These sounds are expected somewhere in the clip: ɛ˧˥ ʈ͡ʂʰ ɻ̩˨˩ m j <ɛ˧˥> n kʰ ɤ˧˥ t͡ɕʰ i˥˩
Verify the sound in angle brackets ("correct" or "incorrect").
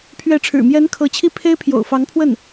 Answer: correct